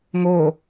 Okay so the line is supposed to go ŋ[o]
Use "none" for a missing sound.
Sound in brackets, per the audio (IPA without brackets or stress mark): o